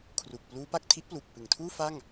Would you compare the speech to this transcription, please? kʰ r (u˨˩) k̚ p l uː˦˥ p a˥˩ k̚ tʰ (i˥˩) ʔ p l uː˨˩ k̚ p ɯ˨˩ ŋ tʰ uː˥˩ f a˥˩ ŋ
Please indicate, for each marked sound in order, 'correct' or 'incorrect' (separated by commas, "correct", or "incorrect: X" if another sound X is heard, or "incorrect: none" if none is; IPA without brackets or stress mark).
correct, incorrect: i˦˥